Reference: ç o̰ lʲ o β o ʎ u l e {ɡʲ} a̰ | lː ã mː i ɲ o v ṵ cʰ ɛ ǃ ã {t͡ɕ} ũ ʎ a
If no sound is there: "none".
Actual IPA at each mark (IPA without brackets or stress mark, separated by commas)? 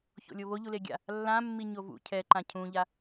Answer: ɡʲ, cʰ